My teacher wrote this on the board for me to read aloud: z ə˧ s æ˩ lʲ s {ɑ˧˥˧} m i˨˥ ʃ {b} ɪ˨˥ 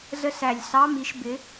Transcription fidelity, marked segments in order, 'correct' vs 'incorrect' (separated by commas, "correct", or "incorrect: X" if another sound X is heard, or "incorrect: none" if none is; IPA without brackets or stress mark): correct, correct